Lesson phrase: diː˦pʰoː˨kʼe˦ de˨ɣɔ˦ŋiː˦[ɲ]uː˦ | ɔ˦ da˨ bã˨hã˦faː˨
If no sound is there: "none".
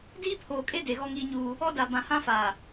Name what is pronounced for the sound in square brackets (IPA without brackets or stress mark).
ɲ